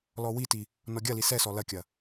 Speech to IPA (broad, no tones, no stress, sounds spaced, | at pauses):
l ɔ w i t i | n ɔ ɡʲ ɐ l i s ɛ s ɔ l ɐ kʲ ɐ